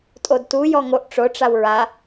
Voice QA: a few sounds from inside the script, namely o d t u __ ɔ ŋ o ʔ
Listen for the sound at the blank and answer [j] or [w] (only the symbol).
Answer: j